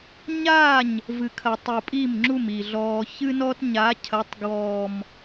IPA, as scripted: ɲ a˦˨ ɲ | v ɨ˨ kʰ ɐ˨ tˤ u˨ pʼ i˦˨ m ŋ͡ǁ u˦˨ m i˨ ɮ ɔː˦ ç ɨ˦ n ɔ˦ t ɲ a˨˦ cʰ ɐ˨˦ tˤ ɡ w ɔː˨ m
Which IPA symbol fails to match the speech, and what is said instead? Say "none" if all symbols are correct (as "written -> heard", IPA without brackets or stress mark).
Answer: none